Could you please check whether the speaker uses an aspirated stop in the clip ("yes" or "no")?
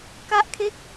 yes